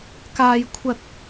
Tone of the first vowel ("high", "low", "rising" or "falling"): high